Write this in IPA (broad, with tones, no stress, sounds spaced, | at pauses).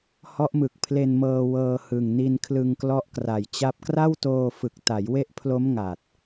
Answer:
h ɔ˦˥ ʔ m ɯ˨˩ k̚ pʰ l e˧ n m ɤː˧ w ɤː˧ h ɯ˨˩ ŋ n i˧ n kʰ l ɯ˧ ŋ k l ɔ˦˥ ʔ k r a˨˩ j t͡ɕ a˦˥ p̚ k r a˥˩ w t oː˧ f ɯ˨˩ k̚ t a˩˦ j w e˦˥ ʔ pʰ l o˦˥ m ŋ a˨˩ t̚